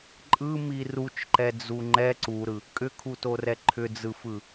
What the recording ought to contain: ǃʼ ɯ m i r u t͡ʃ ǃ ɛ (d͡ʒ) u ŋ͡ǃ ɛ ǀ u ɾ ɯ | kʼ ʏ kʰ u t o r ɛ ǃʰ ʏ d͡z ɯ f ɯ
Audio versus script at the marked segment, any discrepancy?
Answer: yes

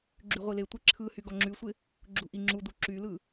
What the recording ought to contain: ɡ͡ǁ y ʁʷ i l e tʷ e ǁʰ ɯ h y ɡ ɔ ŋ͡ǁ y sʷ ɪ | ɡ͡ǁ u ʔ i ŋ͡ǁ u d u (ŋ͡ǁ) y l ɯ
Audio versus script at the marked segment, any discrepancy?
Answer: yes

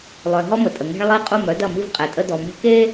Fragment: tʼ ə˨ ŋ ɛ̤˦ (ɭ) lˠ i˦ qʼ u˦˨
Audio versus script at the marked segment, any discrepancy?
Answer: no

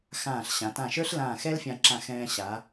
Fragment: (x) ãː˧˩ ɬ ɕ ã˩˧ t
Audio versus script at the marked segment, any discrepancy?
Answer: no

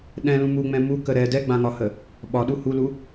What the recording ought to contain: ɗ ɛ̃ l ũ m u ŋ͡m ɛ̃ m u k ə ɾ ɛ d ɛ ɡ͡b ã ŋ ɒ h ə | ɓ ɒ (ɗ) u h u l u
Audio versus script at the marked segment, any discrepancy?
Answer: no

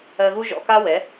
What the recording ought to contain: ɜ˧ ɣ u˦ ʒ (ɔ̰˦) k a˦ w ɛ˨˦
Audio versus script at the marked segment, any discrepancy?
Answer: yes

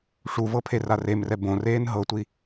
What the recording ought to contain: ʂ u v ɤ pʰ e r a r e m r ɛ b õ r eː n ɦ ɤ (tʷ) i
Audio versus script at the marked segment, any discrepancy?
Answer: no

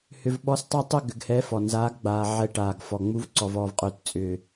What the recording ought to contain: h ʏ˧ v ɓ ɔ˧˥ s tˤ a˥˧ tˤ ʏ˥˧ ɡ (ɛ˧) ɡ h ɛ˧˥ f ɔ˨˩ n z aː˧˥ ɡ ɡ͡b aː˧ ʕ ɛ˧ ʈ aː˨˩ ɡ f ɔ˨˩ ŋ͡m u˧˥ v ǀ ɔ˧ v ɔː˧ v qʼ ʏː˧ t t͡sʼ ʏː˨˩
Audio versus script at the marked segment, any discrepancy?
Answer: yes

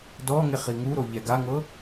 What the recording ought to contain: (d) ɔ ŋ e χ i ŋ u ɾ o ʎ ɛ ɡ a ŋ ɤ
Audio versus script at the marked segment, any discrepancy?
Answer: no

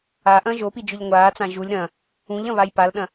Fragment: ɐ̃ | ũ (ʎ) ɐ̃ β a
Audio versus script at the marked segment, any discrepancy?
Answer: no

